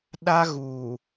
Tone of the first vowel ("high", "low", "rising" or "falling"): high